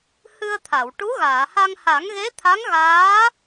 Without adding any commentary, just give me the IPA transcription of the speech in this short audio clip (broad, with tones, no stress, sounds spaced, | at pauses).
h ɨ˧ ə̯ t̪ʰ a˨˩˨ w ʈ u˧˥ ɣ aː˨˩˨ h a˧ ŋ h a˨˩˦ ŋ ɣ e˧˥ t̪ʰ a˧˥ ŋ ɣ aː˧˥